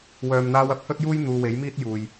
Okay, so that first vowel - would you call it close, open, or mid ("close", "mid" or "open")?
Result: mid